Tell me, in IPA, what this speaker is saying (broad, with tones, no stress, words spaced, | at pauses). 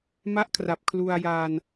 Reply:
ma˦˥ʔkʰra˨˩p̚ kʰlu˧a̯jaː˧n